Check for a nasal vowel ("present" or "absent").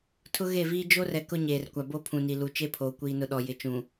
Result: present